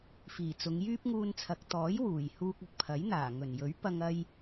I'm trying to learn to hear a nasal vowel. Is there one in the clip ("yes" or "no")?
no